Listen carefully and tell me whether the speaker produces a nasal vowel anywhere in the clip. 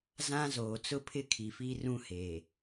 yes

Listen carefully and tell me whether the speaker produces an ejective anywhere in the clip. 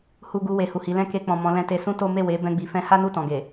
no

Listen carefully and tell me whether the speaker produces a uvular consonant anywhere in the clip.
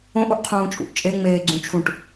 yes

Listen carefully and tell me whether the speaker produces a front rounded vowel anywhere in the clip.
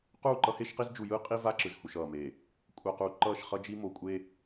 no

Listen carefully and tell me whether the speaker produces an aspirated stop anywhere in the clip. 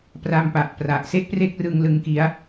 no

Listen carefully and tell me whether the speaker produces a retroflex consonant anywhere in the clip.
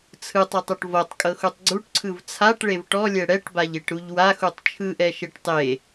yes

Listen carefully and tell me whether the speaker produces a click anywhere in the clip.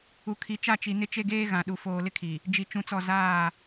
no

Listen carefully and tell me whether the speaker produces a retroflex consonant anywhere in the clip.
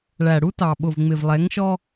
yes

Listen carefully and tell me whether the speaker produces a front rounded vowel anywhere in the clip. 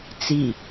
no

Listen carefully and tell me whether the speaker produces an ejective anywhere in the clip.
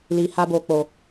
no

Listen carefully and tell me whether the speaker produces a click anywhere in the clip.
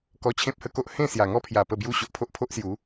no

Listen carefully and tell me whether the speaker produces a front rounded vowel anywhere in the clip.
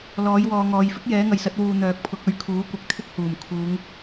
yes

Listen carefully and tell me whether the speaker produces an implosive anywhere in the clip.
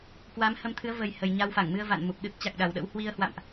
yes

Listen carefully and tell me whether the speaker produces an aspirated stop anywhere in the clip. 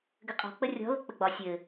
no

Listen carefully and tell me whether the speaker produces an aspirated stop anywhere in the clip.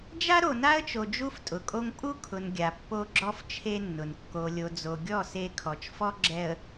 yes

